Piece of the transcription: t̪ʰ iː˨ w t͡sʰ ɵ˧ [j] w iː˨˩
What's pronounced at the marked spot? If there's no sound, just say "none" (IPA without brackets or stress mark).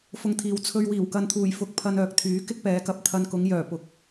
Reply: ɥ